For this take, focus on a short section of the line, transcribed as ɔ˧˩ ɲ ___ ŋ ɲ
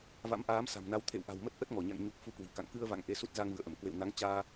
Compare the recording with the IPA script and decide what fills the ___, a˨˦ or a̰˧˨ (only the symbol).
a̰˧˨